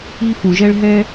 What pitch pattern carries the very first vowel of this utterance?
high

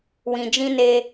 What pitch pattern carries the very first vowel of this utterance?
low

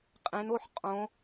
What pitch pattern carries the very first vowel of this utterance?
rising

